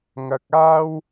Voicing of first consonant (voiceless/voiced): voiced